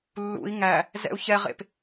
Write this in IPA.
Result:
lːṵi̯ ŋæ | zɛ̰u̯çɛʁḛp

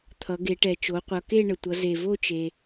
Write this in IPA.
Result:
t̪ʰʌ˩˧ɡe˩˧ʈɛ˩ t͡ʃo˩˧qʷʌ˩˧ ke˥˧ɳə˩tʷʌ˩˧ ze˩vo˥˧t͡ʃe˩

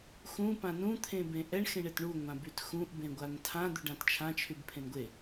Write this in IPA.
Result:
xũ pãnũ t̪ʰẽbẽʔɛɳ xẽɳetɳu ŋʷãbytxũʔ bẽɡʷantʰã d̪yɖãtt͡ʃʰã t͡ʃʰybpʰẽnɡʷe

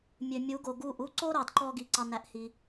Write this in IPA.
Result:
mʲø˨mʲu˨˦ɡo˨ɡu˦˨ʔ u˦ǀo˦ ɾɑ˨dǃɔ˦ɡi˨ ǀɑ˦næ˦ʔhi˦

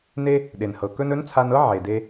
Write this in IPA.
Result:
ne˥ | ɗe˩nhɤ˩kɵ˥n ɵ˧˥nt͡sʰa˧nɤ˥ ʕe˩de˧

